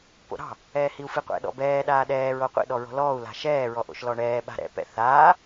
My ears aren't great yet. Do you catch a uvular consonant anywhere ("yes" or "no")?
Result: yes